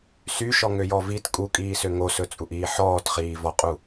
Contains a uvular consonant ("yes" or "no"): yes